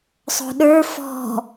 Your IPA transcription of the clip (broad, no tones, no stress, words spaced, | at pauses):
sˤo̤ɗə˞ fɔ̤